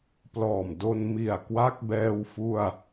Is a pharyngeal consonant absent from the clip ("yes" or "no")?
yes